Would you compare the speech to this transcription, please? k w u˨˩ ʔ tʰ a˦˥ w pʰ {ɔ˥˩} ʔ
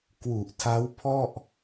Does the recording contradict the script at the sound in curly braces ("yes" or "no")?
no